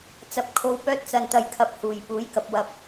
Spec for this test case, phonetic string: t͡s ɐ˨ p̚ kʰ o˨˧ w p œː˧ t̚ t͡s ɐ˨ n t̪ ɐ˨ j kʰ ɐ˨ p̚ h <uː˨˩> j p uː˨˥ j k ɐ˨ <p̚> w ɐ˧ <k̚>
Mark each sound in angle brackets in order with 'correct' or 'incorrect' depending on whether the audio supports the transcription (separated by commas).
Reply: correct, correct, incorrect